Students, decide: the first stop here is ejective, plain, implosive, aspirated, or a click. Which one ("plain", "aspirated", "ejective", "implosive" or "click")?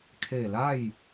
aspirated